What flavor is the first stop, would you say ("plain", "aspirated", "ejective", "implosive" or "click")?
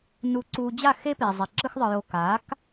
click